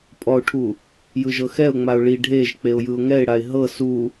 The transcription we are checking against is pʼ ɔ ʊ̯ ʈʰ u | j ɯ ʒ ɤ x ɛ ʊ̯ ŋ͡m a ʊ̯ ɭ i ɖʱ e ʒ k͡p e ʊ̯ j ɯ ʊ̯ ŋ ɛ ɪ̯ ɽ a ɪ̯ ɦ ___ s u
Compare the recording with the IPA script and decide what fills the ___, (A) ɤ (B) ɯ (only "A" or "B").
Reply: A